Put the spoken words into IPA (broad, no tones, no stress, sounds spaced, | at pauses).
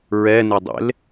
ɹ ɛ n ɪ dˤ ḛ l